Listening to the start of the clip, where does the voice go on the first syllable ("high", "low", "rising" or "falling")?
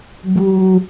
high